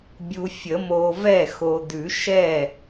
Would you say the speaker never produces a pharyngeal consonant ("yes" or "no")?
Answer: yes